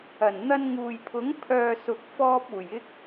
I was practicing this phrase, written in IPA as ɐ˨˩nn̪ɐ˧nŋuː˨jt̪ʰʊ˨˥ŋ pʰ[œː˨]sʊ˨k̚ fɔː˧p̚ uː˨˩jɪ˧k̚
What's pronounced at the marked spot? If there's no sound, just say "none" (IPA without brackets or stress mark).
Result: œː˨